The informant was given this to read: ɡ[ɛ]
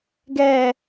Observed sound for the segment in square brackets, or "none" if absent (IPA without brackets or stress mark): ɛ